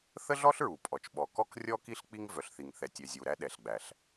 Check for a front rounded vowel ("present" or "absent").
present